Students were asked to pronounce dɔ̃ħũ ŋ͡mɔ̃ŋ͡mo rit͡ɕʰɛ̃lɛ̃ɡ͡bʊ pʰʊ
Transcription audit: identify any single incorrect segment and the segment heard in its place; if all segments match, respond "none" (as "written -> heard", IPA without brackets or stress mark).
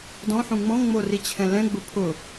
none